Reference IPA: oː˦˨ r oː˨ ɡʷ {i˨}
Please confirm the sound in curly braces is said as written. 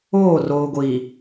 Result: yes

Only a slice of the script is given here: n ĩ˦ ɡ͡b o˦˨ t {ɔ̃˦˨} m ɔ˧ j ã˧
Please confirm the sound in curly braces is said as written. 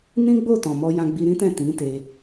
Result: no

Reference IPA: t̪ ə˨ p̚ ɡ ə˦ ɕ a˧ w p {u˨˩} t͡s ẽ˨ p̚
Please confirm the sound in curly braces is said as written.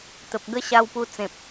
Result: no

